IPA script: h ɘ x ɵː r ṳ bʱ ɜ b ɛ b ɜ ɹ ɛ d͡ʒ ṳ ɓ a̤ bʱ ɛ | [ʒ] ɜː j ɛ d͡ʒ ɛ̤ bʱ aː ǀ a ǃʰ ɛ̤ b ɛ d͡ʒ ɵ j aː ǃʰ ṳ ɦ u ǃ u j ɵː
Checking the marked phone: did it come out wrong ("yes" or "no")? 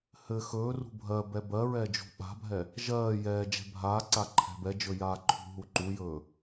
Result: no